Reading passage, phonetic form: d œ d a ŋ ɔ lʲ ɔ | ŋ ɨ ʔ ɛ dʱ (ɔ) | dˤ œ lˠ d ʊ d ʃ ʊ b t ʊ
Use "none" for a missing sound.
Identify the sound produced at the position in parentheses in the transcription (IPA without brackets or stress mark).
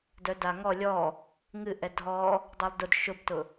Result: ɔ